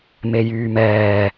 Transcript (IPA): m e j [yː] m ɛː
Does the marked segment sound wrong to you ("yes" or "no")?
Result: no